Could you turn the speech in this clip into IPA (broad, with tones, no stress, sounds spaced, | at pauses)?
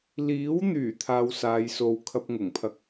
l iː˨˥ w n̪ yː˨˩ t̪ʰ aː˧ w s aː˨˧ j s o˧ w kʰ ɐ˥ p̚ ŋ ʊ˨˩ ŋ pʰ ɐ˥ k̚